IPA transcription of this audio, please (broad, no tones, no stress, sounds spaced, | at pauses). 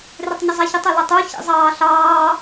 r ɪ tˤ ɲ ɪ zˤ æ ç ɪ tˤ ʊ l ɪ tˤ u ç ḭ zˤ ɑː ɬ ɑː